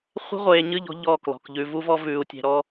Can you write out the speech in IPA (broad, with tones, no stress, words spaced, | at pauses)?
χʷe̤˦ʁʷeː˨ɲɨ˦˨ʎɔ̤˦ ʎɔ˦˨klɔ̤˨k ʎʉ˨vu˦vɔ˦ vʉː˨u̯tʲe̤˨ɾɔ˦